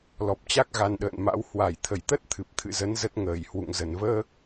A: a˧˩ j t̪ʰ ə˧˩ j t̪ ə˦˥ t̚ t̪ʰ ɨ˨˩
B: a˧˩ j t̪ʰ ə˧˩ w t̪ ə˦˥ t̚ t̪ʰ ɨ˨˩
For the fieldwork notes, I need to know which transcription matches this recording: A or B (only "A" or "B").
A